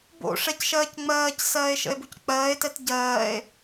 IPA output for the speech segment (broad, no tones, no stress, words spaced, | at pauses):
bo̰ʂɛcʃɜːc ŋ͡mɜːcsɜːe̯ʃə̰e̯buc k͡pɜːe̯tɛt ɟɜːe̯